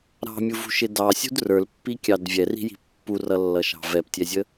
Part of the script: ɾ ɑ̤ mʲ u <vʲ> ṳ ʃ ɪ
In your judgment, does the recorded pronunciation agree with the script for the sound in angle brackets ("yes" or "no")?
no